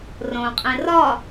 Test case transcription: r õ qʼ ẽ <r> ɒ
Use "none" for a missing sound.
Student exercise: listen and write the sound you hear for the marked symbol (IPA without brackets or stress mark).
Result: r